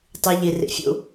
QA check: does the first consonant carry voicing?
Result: no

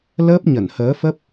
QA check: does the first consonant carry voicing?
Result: yes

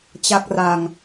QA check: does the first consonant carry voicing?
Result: no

